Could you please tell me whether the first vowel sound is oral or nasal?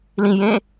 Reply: nasal